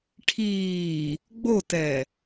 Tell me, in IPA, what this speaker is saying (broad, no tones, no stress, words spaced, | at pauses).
ʈʰiː | ɡ͡botɛ